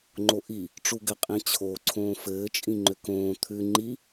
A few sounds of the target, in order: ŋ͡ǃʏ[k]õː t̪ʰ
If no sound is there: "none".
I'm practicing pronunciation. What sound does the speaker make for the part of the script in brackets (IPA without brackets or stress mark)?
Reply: k